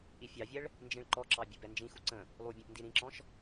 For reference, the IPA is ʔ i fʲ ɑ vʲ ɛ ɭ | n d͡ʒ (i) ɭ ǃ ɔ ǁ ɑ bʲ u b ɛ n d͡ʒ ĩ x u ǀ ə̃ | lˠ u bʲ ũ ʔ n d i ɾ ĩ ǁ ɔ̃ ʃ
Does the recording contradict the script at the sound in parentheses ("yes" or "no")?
yes